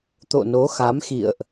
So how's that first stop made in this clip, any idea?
plain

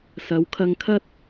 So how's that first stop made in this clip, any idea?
aspirated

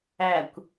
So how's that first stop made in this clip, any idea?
plain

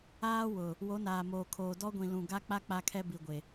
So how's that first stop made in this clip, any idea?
aspirated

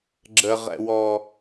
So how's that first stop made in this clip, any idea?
click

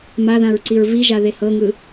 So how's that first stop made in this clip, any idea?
click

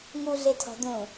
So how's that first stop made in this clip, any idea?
aspirated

